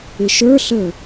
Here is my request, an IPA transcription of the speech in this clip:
ɪ ʃ ə˞ ɬ əː

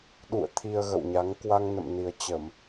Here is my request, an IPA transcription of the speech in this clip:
ɗ ṵ˧˨ ə̯ t̪ʰ i˧ ə̯ ɣ ə̰˧˨ w ɲ a˨˦ ŋ k w a˧ ŋ n ə̰˧˨ m n i˨˩ ə̯ t͡ɕ ə˧˩˨ m

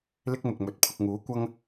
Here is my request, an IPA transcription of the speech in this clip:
l ɪ˥ k̚ m ʊ˨ k̚ m ɵ˨˥ t̚ pʰ ʊ˧ k̚ ŋ uː˨˥ kʷ ɐ˥ ŋ

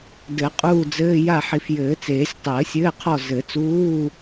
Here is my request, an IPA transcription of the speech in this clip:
d ɘ˨˩˦ qʼ uː˦˨ d͡z ɘː˧˥˧ j a˦˨ ħ i˨ f j ɘː˨˩˦ t͡s eː˨˩˦ sʲ tˤ ɘː˨˩˦ sʲ ɘː˧˥˧ qʰ ɔ˦˨ z ɘ˨˩˦ t͡s uː˧˥˧

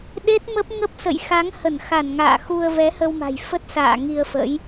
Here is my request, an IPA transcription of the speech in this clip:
ɗ e˦˥ t̚ m ə˦˥ p̚ ŋ ə˦˥ p̚ s ə̰˧˨ j x a˨˦ ŋ h ə˧˩ n x a˧˩ n ŋ a̰ː˧˨ x u˧ ə̯ v ɛ˨˦ h ə˧ w m a̤˨˩ j f ə˦˥ t̚ s a̰ː˧˨ ŋ i˧ ə̯ f ə̰˧˥ j

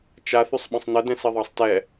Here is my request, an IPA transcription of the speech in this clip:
t͡ʃ a θ y sˤ ɓ ə̃ sˤ n ə d ɛ̃ s i ðˤ ɑ sˤ t ɛ

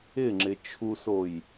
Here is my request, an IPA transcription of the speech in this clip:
ɪ ŋ͡ǁ ɪ t͡ʃʰ u s o j

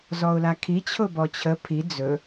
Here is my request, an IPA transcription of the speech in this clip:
z ɔ ʊ̯ l a kʰ i t͡ɕʰ ʊ b ɔ t͡ɕʰ ə pʰ i d͡z ɵ

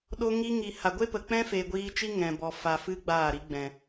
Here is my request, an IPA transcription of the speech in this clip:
ɗ o˧ ŋ i˧ ŋ i˨ h a˨ ɡʷ e˦ p ə˨ k͡p ɛ̃˦ f e˨ ɡʷ iː˧ t͡ʃ i˦ ŋ ɛ̃˨ b ɔ˨ f a˨ f ɨ˧ ɡ͡b aː˦˨ ɾ i˧ ɡ͡b ɛ̃˨

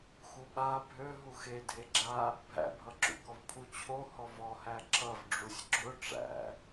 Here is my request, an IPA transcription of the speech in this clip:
x u ɓ a bʱ ø ɦ u x e dʱ e ɡ͡ǁ a | bʱ æ̰ bʱ ʌ ǁ ṵ k ɔ v pʰ u t͡ɕʰ o h ɔ v ɔ h æ ǁ ʌ v ɖ͡ʐ u sʲ ɡ͡ǁ ʊ ʈ͡ʂ æ̰

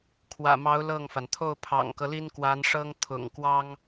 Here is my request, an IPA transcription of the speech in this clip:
kʰ w ä̰˨˩ m ɑ˧˥ ʊ̯ l ɤ˥˩ ŋ f a˩ n t̪ʰ o˥˩ ʊ̯ pʰ ɑ̰˨˩ ŋ k ɤ˦ l i˥ n k w a˧˥ n ʂ ɤ˥ ŋ t̪ʰ ʊ̰˨˩ ŋ k w ɑ˥ ŋ

